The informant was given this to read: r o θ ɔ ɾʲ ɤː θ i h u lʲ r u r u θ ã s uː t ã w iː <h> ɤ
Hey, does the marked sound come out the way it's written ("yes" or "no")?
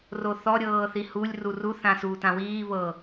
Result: no